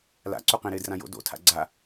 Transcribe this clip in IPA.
l a̰ ǀ u q ẽ ɾ ɪː d r ã j o̰ d o̰ tʰ a̰ ɡ͡ǀ a

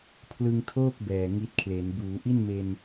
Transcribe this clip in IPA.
pʰ l ɯ˧ ŋ tʰ oː˥˩ k̚ b ɛː˨˩ ŋ i˦˥ t̚ kʰ l e˩˦ n b uː˩˦ ʔ i˥˩ n m e˧ n

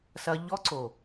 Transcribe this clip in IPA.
s ɐ˧ ʎ ɔ˦ ǀ o˨

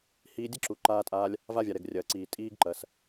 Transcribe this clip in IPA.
h iː˧ dʲ ə˥ ǁ u˩ ǃ aː˧ tʼ aː˧ lʲ | v a˧ vʲ a˩ ɾ ɛ˩ ɡ rʲ ɐː˩ ǀ iː˩ tʼ iː˧ ɡ ǃ ɐ˩ s

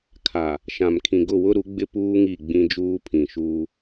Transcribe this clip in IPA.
kʰ a˨ | ʃ ã˨ m kʰ ĩ˨ ɡ ʊ˦˨ w ʊ˦ ɾ u˨˦ ɡ͡b ɪ˦ p uː˦ ŋ i˦˨ ɡ͡b ĩ˦ d͡ʒ uː˦ pʰ ĩ˨ ʃ uː˦

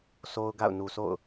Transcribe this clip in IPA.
sʰ o˦ ʊ̯ ɡ a̰˦˨ ʊ̯ n u˨ s o̰˦˨ ʊ̯

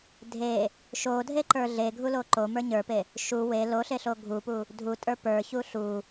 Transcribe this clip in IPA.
dʱ e | ʃ o dʱ e ǃ ə˞ ɮ e ɡʱ u l o ǃ o m ə˞ ɲ ə˞ p e | ʃ u w e l o ɬ e ɬ o ɡʱ u p u | dʱ u tʼ ə˞ p ə˞ ç u ɬ u

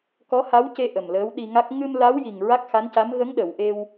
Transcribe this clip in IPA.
k ɔ˧˥ h a˧˥ w c e˧ ʔ ə˨˩ m l əː˧˥ w ɗ i˧ ŋ a˦˥ k̚ ŋ ɨ˧ m l a˧˥ w j i˨˩ ŋ ɹ a˦˥ k̚ x a˧˥ n c a˧˥ m ɣ ə˧˥ ŋ ɗ ə˨˩˨ w ʔ e˧ w

